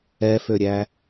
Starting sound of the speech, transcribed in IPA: ɛ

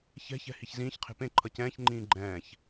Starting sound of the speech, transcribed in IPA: ç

